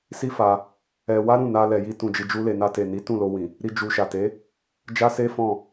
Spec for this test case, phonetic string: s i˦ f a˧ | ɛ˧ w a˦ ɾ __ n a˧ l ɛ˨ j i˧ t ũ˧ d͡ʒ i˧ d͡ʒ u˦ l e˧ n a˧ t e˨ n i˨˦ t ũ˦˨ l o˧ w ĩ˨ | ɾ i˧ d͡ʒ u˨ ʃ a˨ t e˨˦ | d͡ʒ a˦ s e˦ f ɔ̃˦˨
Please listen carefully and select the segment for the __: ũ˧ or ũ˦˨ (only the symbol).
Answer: ũ˦˨